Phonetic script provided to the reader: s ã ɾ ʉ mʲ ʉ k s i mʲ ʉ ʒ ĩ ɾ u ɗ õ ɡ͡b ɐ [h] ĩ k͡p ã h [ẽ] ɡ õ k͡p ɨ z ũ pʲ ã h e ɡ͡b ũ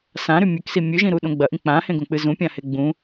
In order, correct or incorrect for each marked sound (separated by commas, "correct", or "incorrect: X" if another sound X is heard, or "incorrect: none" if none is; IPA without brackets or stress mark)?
incorrect: ʔ, correct